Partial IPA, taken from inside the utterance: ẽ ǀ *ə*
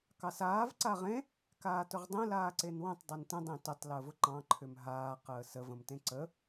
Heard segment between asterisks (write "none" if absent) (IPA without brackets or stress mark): ə